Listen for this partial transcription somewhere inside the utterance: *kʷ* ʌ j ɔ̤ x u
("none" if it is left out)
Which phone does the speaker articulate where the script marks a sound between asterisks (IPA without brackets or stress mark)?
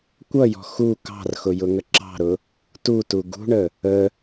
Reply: kʷ